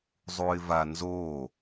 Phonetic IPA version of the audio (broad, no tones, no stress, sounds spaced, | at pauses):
zˤ u ɪ̯ v a n z o